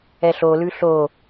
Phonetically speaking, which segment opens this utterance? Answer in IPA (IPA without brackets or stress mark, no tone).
ɛ